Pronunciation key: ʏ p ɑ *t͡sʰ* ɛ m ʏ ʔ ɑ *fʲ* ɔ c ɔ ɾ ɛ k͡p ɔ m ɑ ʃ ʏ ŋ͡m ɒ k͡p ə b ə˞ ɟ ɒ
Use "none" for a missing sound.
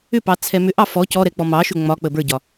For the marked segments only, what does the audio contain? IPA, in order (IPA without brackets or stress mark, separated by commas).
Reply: t͡sʰ, f